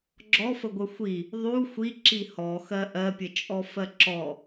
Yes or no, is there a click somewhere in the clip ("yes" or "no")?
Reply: yes